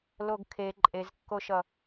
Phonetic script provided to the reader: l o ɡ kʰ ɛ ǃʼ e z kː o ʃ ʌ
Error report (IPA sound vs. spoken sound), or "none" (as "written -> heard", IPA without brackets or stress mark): ɛ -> e